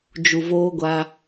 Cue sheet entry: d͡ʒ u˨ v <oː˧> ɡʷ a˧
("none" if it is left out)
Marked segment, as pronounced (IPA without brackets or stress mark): oː˧